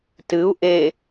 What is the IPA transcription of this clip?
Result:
t ɨ u̯ ʔ e

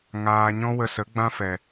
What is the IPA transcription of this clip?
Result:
ŋ aː˨ ɲ ɔ̃˦ w ə˧ s ə˨˦ ɡ͡b ã˦ f ɛ˨

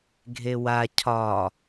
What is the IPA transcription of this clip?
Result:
ɡʱ e w a cʰ ɒ

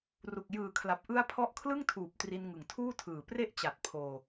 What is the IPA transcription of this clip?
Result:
r u˨˩ k̚ j ɯː˨˩ kʰ l a˨˩ p̚ ʔ ɯ˦˥ a̯ pʰ ɔ˦˥ ʔ kʰ l ɯ˥˩ ŋ tʰ uː˨˩ p̚ t r i˧ n ŋ ɯ˨˩ ŋ tʰ uː˥˩ tʰ ɯː˨˩ p r e˦˥ ʔ t͡ɕ a˨˩ t̚ pʰ oː˧

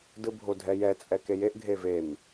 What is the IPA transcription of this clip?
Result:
d ɯ bʱ o dʱ ɛ j ɛ t͡sʼ ɛ k e j e ʔ ɡʱ e v e m

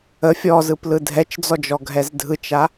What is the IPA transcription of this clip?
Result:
ə fʲ ɔ z ɯ p l ɯ dʱ ɛ t͡ʃ d͡z ɔ d͡ʒ ɔ ɡʱ ɛ z dʱ ɯ t͡ʃ a

